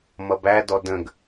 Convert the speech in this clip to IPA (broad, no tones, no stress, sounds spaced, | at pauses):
m ʌ b æ d ɔ d ə̃ ɡ